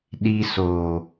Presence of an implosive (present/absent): present